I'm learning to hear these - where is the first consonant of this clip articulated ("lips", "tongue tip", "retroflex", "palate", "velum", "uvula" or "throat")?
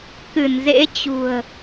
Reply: velum